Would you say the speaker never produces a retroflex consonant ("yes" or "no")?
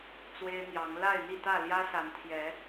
yes